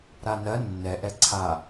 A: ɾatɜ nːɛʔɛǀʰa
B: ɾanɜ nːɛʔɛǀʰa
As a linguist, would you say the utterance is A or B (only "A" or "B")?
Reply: B